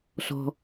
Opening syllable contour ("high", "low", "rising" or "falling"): low